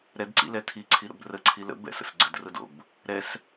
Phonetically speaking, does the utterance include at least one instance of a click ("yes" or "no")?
yes